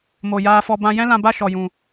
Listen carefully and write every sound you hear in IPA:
mo˨ jaː˧fɔ˧ bã˧jɛ̃˦lã˧ ba˦ʃɔ˨jũ˨

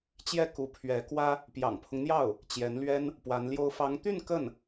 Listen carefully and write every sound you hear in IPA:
t͡ɕjɛ˥˩ku˧˥pʰɥɛ˧˥kwä˥ | pjɑ̰˨˩ŋpʰʊ˦ŋn̪jɑ˥˩ʊ̯ | t͡ɕjɛ˧˥nlɥɛ˥n | pwa˧˥nljo˥ʊ̯ fɑ˧˥ŋt̪y˥˧n kə˥˩n

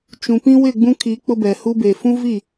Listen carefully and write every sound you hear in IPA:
t͡ʃũ˨ pĩ˦wɪ˦˨ɡ͡bũ˦kʰi˨˦ k͡pʊ˦bɛ˨ hu˦be˨ fũ˦vi˦˨

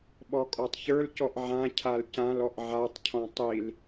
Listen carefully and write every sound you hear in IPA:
ɓɔkʼɔtˤçə˞lcɔʔ ʕãcʰal cãl ɔʔʕatˤcʰɔ̃ tˤil

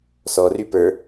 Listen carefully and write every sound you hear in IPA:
sɔry pə˞

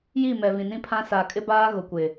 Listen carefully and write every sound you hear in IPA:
ji˦˨ mɛ˨vĩ˨nĩ˦pʰã˦ sa˨kʼɪ˦baː˦ ɣʊ˨kʷɪ˨

